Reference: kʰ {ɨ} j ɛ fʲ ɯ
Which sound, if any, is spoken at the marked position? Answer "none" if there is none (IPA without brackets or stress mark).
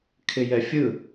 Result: ɪ